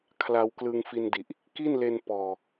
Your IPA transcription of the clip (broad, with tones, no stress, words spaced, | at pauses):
kʰla˧wklɯ˧ŋfi˧ndi˨˩ʔ | ki˥˩nle˧n pɔː˨˩